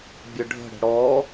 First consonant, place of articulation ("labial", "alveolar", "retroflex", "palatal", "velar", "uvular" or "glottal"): labial